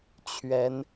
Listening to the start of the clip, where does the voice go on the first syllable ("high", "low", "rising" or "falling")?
rising